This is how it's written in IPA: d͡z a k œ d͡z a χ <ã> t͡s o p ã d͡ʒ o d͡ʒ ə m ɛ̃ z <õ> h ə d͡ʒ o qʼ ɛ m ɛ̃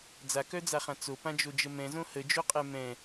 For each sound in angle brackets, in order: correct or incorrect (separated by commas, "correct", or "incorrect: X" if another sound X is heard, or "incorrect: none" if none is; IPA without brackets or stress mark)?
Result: correct, correct